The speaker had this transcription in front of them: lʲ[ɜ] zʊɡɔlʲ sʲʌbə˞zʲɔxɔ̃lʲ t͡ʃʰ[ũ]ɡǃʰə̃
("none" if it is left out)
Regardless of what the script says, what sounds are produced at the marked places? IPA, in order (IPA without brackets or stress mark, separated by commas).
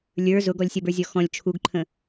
ə˞, u